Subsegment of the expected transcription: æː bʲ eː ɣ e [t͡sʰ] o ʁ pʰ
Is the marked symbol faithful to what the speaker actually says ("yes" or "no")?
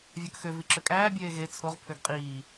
yes